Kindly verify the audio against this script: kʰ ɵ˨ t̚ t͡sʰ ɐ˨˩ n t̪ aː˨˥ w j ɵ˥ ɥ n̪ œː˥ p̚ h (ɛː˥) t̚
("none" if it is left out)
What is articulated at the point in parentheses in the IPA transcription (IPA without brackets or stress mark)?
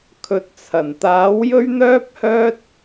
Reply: œː˥